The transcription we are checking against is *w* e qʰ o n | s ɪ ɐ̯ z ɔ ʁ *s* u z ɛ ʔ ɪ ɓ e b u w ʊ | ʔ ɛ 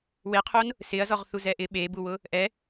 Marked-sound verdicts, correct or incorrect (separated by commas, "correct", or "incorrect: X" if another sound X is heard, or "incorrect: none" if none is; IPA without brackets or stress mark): correct, incorrect: θ